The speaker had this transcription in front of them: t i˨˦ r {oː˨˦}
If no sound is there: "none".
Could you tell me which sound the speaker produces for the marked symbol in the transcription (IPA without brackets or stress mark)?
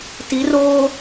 oː˦